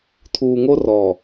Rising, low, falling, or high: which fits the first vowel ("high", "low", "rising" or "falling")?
low